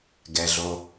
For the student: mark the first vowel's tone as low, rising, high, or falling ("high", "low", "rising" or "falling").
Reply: low